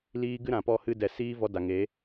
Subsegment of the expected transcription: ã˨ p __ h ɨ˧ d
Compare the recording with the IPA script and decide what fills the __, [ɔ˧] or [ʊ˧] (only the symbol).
ɔ˧